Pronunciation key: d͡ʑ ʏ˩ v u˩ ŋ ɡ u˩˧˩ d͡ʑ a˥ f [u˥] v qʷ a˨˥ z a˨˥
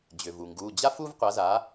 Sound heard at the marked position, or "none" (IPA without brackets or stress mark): u˥